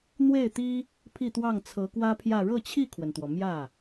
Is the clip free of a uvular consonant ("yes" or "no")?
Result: yes